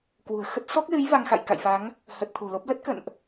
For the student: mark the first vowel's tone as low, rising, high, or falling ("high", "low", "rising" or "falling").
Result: low